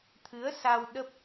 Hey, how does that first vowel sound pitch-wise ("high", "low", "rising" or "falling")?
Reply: rising